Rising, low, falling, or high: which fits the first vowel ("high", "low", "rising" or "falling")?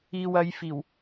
low